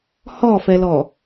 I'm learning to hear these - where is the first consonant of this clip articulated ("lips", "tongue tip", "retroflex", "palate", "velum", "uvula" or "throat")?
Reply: throat